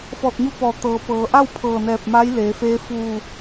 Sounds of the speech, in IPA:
f ɔː˧˩ t̚ ɲ u˧ p ɔː˧˩ t̪ ɤː˩˧ p ɤː˩˧ ʔ a˥˨ w pʰ ɤː˧˩ n ɛː˧˩ p̚ m a˧˥ j l eː˩˧ f eː˧˥ f uː˧˩

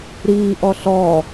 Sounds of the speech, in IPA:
ɾ iː ʔ ɔ ɬ ɔ

